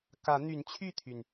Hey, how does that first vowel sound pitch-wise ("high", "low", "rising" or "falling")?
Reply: rising